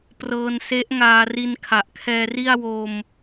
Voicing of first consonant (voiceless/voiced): voiceless